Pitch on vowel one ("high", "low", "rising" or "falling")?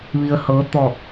low